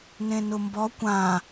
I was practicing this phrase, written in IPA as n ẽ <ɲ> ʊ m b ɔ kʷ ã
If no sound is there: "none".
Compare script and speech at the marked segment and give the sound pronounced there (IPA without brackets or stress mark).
n